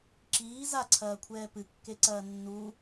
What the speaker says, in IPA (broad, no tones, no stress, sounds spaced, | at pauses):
ǁ iː z a ǀʰ ɐː kʷʰ ɛː p ɨ kː e ǀ ɐː nː u